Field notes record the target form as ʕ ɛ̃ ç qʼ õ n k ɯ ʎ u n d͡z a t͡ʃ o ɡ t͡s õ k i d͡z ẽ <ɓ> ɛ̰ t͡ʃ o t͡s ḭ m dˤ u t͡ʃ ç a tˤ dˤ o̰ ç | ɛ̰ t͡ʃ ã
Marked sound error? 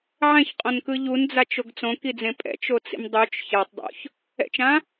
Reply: yes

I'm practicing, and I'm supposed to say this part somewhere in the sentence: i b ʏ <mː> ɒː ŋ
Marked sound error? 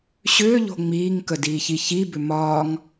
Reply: yes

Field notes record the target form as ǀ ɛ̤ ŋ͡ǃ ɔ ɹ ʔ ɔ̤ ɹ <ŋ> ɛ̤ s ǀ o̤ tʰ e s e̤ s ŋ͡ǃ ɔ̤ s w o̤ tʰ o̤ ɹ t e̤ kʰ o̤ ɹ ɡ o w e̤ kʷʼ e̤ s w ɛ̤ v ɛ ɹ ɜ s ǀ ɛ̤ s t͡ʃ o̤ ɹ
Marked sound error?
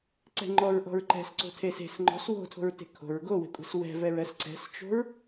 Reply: yes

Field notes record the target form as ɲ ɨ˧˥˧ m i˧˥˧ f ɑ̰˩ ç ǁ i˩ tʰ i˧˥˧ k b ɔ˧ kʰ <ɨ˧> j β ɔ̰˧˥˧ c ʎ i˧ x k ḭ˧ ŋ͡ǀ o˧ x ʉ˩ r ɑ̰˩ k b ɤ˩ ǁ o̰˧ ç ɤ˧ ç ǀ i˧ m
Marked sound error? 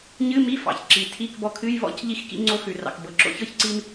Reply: yes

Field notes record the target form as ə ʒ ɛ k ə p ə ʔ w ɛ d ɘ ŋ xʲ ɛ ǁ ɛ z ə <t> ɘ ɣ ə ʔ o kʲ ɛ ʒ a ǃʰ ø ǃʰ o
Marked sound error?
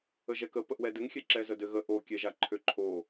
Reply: yes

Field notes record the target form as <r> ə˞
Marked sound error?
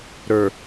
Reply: yes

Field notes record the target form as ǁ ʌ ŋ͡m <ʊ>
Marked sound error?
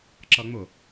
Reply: no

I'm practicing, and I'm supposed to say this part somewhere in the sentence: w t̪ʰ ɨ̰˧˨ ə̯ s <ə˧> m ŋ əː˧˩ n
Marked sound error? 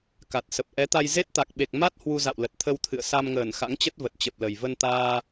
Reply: yes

